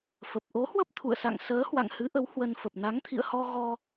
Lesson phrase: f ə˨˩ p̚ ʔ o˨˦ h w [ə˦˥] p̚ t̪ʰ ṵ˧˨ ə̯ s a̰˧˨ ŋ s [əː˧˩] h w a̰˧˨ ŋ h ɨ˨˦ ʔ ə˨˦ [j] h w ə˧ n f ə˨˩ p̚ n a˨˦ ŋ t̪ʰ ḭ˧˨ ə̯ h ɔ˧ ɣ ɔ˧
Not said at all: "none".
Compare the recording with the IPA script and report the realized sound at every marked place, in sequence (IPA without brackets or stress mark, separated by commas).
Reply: ə˦˥, əː˨˦, w